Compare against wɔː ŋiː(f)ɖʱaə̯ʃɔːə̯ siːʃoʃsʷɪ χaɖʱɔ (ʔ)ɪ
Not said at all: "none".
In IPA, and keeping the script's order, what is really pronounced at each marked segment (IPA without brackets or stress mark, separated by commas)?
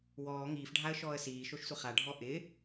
f, ʔ